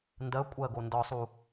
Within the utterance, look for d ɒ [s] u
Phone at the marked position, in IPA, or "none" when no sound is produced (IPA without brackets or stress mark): sˤ